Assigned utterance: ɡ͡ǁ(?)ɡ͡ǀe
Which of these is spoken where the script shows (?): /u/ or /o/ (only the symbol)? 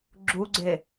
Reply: u